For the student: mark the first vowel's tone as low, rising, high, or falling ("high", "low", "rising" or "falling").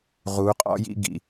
rising